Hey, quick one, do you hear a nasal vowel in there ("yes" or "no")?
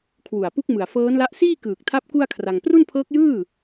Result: no